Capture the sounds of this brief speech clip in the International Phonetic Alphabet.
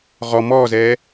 ʁɔ mɔːzɛː

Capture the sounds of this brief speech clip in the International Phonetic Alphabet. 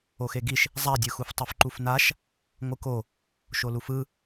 oxeɡiʃ | zˤadʲɯxuf tˤɯfǃufnaʃ | ŋʷɯko | ʃolufɯ

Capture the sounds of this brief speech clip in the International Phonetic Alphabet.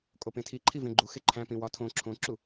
kʼopẽtʰiǃʰi vẽɡ͡ǃuxe ǃʰæ̃pĩ wɒtʰõ ǁʰõǁu

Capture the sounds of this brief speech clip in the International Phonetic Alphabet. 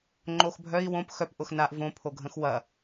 ŋ͡ǃoxbʱœi̯ wõp xœp ʔʊxnaʔ võ pʰoɡʱə̃xwɐ

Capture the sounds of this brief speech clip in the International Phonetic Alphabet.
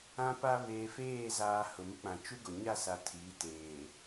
ã˦pa˦ βeː˨feː˦˨zaː˨ hʊ˨mɪ˦k͡pã˨ t͡ʃu˦ɡo˨ ɲa˦˨sa˨ tʰiː˨˦teː˨

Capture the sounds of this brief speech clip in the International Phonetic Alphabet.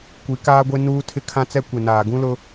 kʷi˨˦kaː˦ɡʷe˦nuː˦ tʰɪ˦kʰã˦t͡sɛ˦ kʷe˨naː˨ɡũ˦lʊ˦

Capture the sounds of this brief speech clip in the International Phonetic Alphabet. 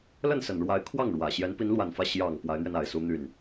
lə˥˩nsə˨˩nɻwa˧˥ɪ̯ kʰwɑ˥˩ŋɻwä˨˩ ɕjɛ˧˥npi˧˥nlwa˨˩nfä˥˩ ɕjɑ˨˩ŋ pwa˧˥ɪ̯n̪ɥɛ˧n a˨˩ɪ̯su˥n̪y˥˩n

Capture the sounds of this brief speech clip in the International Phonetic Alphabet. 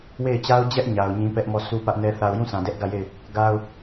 we˦˨ɪ̯t͡ɕa˦ʊ̯d͡ʑɛ˦ʔ ɲa˨ʊ̯ɲĩ˦pɛ˦ʔ mɔ˦˨sʰu˦pä˦ʔnɛ˦ θa˨ʊ̯jũ˦˨ sʰã˨dɛ˦ʔɡä˦˨je˦˨ɪ̯ | ɡa˦ʊ̯

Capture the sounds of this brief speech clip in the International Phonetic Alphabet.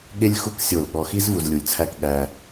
ɠe˥lʲxu˥k sʲo˧˩lɠɔ˧xi˥z vu˧zlʲu˧˩lʲt͡sʰæ˥˧k ɠæ˧

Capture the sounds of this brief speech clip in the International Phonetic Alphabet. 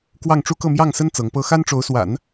kwɑ˥˩ŋʈ͡ʂu˥kɤ˥˧ mjɑ˥˩ŋsə˥n t͡sɤ˧˥ŋpɤ˥ xa˥nʈ͡ʂo˧˥ʊ̯swa̰˨˩˦n

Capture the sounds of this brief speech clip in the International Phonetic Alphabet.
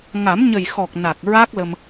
ŋa˨˩˦mɲə˨˩j xɔ˨˩k̚na˨˩k̚ ɹa˦˥k̚lə˧m

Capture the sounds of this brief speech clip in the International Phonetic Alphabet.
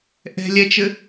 ʔɛ̤lʲɛt͡ʃɘ

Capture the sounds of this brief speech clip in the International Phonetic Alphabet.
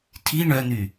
tʰi ɳœn̪y

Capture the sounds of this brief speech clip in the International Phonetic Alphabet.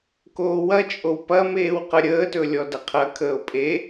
koːwɐt͡ʃʼow pɐmeːw qəɾʲəːtɵ lʲɔdɐqʰɐkʰəːo̯ pʼe

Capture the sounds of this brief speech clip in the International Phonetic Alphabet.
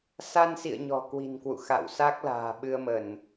sa˧nsḭ˧˨ə̯ ɲɔ̤˨˩kwi̤˨˩nkwṵ˧˨ xa̰˧˨wsa˦˥k̚ la̤ː˨˩ɓɨ˧ə̯mə˧˩˨n

